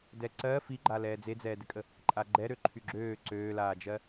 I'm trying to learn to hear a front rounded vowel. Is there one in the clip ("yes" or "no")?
yes